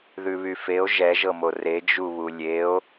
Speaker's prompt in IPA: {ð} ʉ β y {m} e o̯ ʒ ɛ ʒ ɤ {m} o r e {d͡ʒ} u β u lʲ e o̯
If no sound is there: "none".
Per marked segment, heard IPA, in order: ð, f, m, d͡ʒ

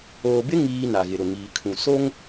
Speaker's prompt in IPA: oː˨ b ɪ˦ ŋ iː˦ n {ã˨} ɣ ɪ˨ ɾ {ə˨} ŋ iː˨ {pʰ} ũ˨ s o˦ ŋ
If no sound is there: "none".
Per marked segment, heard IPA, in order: a˨, ʊ˨, kʰ

